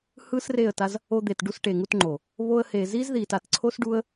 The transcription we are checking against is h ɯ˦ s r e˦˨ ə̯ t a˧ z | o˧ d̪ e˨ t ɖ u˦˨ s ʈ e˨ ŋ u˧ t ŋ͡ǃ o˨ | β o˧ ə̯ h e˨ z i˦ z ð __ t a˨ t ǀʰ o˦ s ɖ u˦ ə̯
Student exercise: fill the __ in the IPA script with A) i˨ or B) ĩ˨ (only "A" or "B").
A